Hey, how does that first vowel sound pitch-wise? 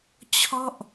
falling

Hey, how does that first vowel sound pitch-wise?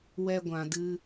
high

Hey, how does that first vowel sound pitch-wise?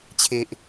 low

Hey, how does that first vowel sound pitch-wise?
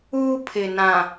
high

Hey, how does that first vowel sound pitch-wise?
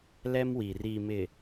high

